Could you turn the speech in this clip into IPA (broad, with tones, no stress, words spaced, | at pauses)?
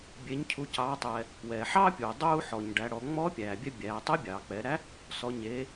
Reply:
bʲe˩˧ɲcʰu˩˧cɑː˩˧ tˤɛ˩ | wɛː˩ħɑː˥pʲuː˩ dˤuː˧ħɔ˩ɲ ɖæ˩˧ɽɔ˩˧ ŋ͡mɔː˧˥ pʲæː˩bʲɛ˧ bʲæː˩˧ tˤɛ˧˥bʲɑː˩k͡pɛː˩˧ɾæ˧˥ | sɔ˩˧ɲeː˩˧